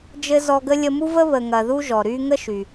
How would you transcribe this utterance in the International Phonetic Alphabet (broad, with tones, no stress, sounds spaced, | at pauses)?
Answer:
d͡ʒ ɘ˥ z ɔ˦ ɡ ə˥ lʲ ə˦ m u˥ v ə˥ β ə˨ ŋ ɐ˨ ð u˥ ʒ ɔ˩ ɾ y˦ ŋ ə˥ ʃ y˩